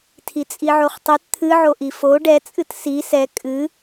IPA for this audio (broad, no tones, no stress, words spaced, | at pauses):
tʰit͡sʼiʕoχtˤɨt t̪ʰɨʕoʔi fo ɖɛt͡sʼɨt si sɛ kʼɨ